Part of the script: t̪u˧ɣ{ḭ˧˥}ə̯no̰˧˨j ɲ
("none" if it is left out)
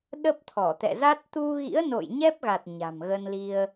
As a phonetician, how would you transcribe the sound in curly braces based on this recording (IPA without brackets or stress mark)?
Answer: ḭ˧˥